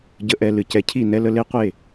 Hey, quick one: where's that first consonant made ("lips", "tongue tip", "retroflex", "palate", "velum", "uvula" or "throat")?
palate